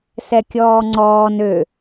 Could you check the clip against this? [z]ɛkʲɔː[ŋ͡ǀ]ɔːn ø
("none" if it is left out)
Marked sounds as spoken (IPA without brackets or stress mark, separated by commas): s, ŋ͡ǀ